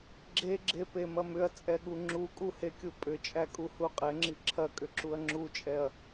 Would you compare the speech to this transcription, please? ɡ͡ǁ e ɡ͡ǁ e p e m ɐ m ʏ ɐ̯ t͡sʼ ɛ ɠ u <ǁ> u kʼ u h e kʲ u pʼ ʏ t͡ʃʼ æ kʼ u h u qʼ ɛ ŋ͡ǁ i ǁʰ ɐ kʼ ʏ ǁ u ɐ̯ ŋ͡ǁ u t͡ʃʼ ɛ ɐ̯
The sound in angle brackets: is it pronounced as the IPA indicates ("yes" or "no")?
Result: no